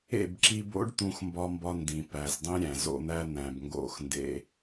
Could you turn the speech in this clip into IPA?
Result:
ḛ˦˨ b ǁ i˧ b o̰˦ ɖ t̪ ũ˦ x m b ɒ˦ m b ɒ˦ n d ĩ˨ p æ˨ z dˤ ĩ˦ ɾʲ æ̃˨ z o̰˧ n̪ æ˦ n̪ æ̃˨ b ŋ ɡ o̰˦˨ x n d ḛ˦

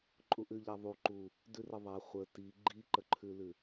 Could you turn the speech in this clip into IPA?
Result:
ǃʼ u ʔ ʉ ʎ a ðˤ u ǃ u | d ʉ r ə ðˤ a χʷ ə t i ɡ͡ǃ i ǃ ə ǃʰ ʉ l ʉ

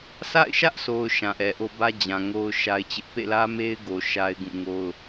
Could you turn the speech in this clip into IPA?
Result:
sʰ a̰˦˨ ɪ̯ ʃ ä˦ ʔ s o˨ ʊ̯ ʃ ã˨ ʔ ɛ˨ ʔ o˦ b ä˦ d͡ʑ ã˨ ŋ o˦ ʊ̯ ʃ a˦ ɪ̯ t͡ɕ ɪ˦ ʔ p ḛ˦˨ l ä˦ m e˦ ɪ̯ ɡ o˨ ʃ a˦ ɪ̯ ɡ ũ˦˨ ŋ o˦ ʊ̯

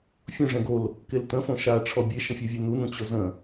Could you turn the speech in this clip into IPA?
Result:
fʲ ũ ʐ ɛ̃ ɡ o l | k e l t̪ ə̃ f õ ʃ a ʈ͡ʂʰ ɔ bʲ e ʃ ə̃ fʲ ɛ vʲ e n̪ u n̪ ũ t͡ɕ o z ə̃

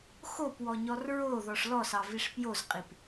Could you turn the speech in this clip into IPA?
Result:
x o p w ɔ ɲ ɔ r ɹ o ð ɔ ʂ l ɔ s ɑ v i ʂ p j o z qʼ i p

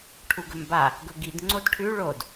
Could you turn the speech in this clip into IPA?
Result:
ʈʰ u ɡ ɵ m b a | ɡ ɵ ɡ i d ŋ͡ǀ o d ʈʰ ʉ ɭ o d

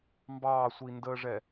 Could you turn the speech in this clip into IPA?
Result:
m b ɑː sʷ i n d əː ʐ ɛ

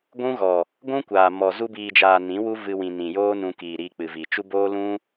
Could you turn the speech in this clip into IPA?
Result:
ɡʷ ũ˦ ɣ ɔ˨ | ɡʷ ũ˦ kʷ aː˨ m ɔ˨ z u˧ b iː˨ d͡ʒ aː˨ n ĩ˨˦ w u˦ v ɨ˧ w ĩ˨ n ĩ˨ j oː˦ n ũ˧ k iː˨ ɾ iː˧ k͡p ɨ˨ v i˨ t͡ʃ u˧ b oː˦ l ũ˦

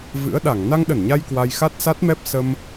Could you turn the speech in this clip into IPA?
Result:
v ɨ̰˧˥ ə̯ ɗ a˧˩ ŋ n a˧ ŋ ɗ ə˧˩ n ɲ a˧ j k w a˧ j x a˦˥ t̚ s a˦˥ t̚ m ɛ˦˥ p̚ s ə˧ m

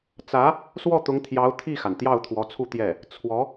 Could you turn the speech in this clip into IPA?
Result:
t͡s ä˧˥ | s w ɔ˥˩ t̪ ʊ˧˥ ŋ t̪ʰ j ɑ˧˥ ʊ̯ t̪ʰ i˥˩ x a˩ n t̪ j ɑ˥˩ ʊ̯ t̪ʰ w ɔ˧˥ t͡sʰ u˥˧ t̪ j ɛ˥˩ | t͡sʰ w ɔ˧˥

